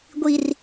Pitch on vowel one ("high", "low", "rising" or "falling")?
low